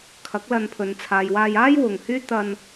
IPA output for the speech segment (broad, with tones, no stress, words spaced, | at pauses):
kʰɐ˨˥k̚lɐ˧npʰɵ˨n t͡sʰaː˨jwaː˧jaː˥j wʊ˨ŋhyː˥ t̪ɐ˧n